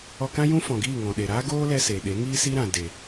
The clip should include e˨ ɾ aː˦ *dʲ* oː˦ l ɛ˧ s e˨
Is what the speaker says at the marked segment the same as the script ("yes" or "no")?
no